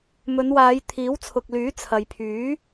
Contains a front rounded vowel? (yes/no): yes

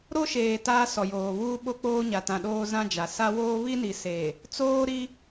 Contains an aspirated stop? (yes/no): no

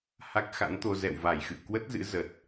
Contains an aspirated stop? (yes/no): no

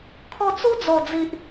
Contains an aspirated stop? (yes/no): yes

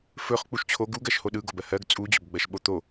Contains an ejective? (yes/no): yes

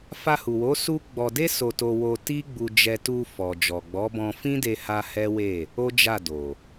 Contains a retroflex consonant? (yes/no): no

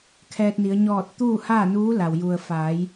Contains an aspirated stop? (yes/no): yes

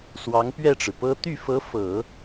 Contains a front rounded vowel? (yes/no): yes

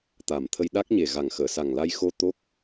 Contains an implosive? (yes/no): yes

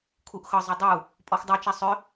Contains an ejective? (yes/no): yes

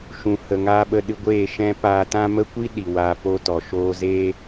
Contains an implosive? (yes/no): yes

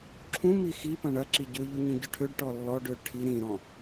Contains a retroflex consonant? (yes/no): yes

